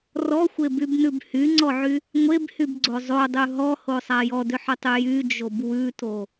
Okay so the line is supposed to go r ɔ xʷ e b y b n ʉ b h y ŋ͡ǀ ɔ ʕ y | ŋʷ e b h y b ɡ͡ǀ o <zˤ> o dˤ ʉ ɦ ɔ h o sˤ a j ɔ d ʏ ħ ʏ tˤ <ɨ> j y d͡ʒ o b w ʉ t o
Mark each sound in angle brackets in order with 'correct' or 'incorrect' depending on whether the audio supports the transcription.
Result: correct, incorrect

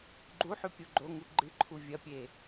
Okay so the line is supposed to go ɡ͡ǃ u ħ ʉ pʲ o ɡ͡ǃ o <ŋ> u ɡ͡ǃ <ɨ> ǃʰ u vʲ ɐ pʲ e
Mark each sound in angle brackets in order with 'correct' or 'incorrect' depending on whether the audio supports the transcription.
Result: correct, correct

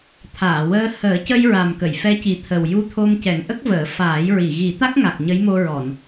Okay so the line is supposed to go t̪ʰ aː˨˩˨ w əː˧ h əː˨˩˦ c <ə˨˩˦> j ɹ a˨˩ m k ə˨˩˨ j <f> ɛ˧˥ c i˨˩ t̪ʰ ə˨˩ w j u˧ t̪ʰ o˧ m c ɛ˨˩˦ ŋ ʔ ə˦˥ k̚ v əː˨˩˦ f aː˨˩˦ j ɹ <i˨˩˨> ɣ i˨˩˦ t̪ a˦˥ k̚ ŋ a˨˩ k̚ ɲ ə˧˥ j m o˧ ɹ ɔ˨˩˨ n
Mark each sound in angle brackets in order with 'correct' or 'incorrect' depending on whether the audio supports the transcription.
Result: incorrect, correct, correct

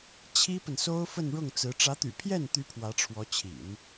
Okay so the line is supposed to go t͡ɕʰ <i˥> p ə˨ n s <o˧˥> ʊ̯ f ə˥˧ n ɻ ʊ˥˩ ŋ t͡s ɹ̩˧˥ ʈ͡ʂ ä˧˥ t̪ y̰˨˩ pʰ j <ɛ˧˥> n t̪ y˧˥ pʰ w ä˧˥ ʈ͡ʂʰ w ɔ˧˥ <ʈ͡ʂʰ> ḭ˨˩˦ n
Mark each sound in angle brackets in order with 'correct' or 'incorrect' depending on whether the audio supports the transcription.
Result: correct, incorrect, incorrect, incorrect

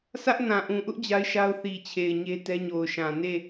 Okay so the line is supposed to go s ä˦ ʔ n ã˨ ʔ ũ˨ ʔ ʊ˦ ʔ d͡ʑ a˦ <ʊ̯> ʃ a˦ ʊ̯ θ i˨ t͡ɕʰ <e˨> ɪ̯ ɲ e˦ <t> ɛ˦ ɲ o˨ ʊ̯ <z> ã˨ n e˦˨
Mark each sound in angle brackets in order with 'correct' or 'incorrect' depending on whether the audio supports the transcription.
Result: incorrect, correct, correct, incorrect

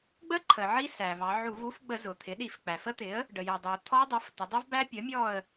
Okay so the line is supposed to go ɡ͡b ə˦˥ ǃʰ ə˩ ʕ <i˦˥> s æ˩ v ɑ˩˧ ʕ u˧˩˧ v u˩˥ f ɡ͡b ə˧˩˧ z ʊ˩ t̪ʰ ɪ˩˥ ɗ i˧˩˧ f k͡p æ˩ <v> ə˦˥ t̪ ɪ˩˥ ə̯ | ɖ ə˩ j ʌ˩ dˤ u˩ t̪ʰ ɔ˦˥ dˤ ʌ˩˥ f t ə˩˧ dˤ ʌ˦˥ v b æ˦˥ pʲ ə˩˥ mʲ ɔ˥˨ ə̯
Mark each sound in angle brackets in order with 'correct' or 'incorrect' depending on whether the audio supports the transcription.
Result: correct, incorrect

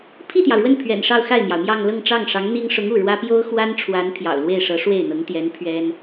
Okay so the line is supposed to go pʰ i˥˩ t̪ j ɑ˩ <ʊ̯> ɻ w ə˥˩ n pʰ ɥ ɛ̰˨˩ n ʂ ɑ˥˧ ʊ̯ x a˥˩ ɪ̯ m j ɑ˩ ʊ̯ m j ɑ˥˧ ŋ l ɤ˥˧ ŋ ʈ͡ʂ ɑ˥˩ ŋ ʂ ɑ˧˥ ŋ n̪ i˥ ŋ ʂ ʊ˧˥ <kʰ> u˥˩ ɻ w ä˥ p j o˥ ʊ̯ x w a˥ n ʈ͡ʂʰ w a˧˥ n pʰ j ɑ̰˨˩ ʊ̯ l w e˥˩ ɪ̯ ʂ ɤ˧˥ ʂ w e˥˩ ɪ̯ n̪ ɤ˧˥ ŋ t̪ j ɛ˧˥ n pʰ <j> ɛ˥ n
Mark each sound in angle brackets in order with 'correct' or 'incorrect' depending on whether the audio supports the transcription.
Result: correct, incorrect, incorrect

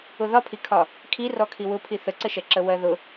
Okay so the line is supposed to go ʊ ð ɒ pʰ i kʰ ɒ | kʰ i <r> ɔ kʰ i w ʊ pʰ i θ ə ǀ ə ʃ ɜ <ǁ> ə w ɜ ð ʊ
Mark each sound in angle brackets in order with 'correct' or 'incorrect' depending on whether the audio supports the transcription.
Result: correct, correct

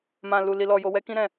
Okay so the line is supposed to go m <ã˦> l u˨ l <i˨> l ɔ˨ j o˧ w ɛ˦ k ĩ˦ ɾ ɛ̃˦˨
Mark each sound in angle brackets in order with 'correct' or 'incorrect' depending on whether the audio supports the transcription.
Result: incorrect, correct

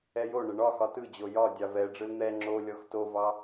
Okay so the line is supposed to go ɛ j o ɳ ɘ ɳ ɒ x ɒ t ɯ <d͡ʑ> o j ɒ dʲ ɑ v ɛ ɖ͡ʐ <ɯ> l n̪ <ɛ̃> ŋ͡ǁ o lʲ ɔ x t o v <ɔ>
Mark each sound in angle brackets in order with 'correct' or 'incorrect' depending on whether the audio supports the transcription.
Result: correct, correct, incorrect, incorrect

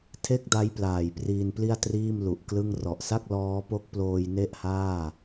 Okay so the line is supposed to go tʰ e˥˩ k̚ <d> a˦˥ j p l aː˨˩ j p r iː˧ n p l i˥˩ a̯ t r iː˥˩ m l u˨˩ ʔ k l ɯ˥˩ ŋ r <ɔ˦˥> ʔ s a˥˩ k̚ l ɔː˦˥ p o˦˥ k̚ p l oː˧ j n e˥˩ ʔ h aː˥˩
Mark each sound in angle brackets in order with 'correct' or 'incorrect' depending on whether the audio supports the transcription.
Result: correct, incorrect

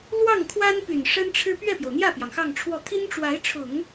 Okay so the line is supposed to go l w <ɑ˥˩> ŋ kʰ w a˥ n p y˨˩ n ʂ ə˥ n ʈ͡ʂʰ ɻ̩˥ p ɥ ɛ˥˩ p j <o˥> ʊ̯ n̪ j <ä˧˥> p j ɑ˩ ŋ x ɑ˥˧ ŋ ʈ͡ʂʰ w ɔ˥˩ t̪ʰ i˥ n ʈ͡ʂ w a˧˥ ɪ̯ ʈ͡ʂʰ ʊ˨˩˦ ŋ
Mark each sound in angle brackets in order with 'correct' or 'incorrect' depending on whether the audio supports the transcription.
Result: correct, incorrect, incorrect

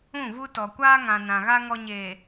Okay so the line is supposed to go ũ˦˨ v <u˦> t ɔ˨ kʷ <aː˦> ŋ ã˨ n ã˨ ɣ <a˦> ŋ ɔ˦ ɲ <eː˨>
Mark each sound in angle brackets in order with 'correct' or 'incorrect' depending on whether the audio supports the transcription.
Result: correct, correct, correct, correct

